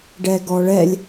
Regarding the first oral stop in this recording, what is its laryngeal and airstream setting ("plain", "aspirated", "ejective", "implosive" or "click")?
plain